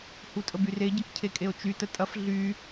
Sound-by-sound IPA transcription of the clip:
h u tʼ ə b y r e ɟ ɐ k cʰ e kʼ e o̯ t͡ʃ y t ə tʼ ɐ f ɮ y

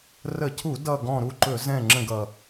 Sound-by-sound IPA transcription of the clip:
r ə˧˩˧ cʰ u˧˩˧ d ʌ˨˩ ɡ ɔ̃˨˩ ɾ u˥˨ ǃ ɵ˧˩˧ z ɛ̃˥˨ ŋ͡ǁ ə̃˥˨ ɡ ʌ˨˩

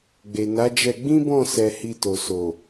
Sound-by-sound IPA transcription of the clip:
ɡ͡b e˨ n a˨˦ d͡ʒ ɛ˧ ɡ͡b ĩ˦ b ɔ̃˦˨ s ɛ˧ h i˧ t o˨ s o˨

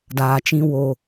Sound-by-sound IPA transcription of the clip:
d aː˨ t͡ʃ ĩ˧ w o˨

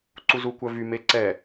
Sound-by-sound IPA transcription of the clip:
ǀ u z u kʷ œ v y m e ǀ ɛ

